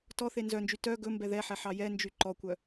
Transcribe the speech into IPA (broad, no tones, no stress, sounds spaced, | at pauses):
t ɔ θ e n z œ n d͡ʒ y t œ ɡ ɵ m b ɛ ð ɛ ħ ɛ ħ ɑ j ɛ n d͡ʒ y ǃ ɔ kʷ œ